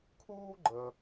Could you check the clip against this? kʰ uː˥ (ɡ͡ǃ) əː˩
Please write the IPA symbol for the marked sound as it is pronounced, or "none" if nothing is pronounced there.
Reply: ɡ͡ǃ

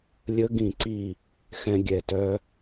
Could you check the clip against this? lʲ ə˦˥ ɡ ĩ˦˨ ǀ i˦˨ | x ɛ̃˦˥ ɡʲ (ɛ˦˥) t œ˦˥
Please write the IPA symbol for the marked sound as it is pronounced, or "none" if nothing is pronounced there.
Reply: ɛ˦˨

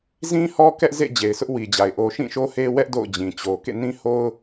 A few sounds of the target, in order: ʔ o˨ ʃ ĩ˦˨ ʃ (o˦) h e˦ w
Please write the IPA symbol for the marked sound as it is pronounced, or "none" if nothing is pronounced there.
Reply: o˦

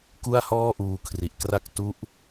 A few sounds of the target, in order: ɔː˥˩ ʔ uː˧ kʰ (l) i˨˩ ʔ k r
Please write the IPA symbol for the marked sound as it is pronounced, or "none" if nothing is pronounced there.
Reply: r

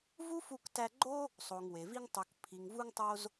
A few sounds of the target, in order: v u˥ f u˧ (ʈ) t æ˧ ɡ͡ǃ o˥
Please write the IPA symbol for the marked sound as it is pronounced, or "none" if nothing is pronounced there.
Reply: k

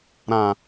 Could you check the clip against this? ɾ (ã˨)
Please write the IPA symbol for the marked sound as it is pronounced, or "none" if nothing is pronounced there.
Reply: ã˨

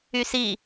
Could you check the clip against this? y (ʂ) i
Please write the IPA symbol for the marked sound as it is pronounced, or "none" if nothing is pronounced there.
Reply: s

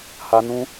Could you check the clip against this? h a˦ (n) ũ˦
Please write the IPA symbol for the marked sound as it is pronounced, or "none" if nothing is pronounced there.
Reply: n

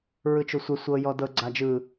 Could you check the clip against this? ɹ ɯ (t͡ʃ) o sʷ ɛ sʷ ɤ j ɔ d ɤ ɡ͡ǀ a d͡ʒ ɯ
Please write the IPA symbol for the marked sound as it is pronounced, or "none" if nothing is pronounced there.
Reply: t͡ʃ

